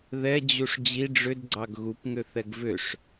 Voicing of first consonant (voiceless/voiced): voiced